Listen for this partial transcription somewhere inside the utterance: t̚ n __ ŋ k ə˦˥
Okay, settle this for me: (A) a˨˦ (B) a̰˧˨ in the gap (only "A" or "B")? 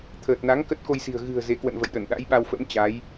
A